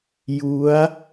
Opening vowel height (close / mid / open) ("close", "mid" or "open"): close